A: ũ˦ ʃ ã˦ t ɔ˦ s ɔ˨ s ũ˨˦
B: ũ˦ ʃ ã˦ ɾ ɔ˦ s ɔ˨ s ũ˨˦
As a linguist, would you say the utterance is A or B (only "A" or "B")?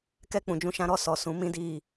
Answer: B